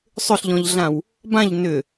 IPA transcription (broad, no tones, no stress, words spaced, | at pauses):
sˤʏɬʎɔ̃ʎɮãw | bãʎ nʏ